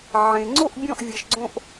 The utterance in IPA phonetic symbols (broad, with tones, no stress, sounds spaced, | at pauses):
ʕ ẽ˧ ŋ͡ǀ o˥˧ ʔ bʲ ɔ̃˥˧ ʔ vʲ ʌ˧ ʃ ɡ͡ǀ õ˥ ʔ